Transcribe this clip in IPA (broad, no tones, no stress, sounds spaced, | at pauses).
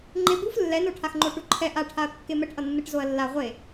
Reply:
ŋ͡ǃ e b u f lː ɛ n o ʈʰ a x ŋ͡ǃ o ʈ u ǃʰ ɛ ʔ a ʈʰ a ɐ̯ kː e m ɛ ʈ ʔ ʌ nː ɯ ʈ z o ɐ̯ lː a ʁʷ e